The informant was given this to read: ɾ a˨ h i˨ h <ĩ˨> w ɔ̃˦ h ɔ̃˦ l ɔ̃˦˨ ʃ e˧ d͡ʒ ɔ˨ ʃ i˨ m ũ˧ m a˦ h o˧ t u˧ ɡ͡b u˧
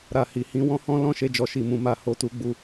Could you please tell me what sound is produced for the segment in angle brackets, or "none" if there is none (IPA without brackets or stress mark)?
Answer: ĩ˨˦